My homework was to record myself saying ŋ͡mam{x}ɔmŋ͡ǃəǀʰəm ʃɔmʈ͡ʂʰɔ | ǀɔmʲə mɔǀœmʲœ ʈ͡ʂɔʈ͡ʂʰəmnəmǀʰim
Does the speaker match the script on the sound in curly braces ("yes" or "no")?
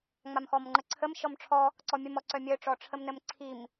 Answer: yes